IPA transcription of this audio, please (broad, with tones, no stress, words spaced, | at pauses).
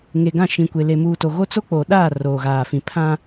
ŋe˨ɡã˦˨ʃĩ˨kʷe˨ le˨muː˨to˨ɣo˦ t͡so˦k͡po˨ɗaː˦˨ roː˨ɣaː˨fĩ˨ pʰã˦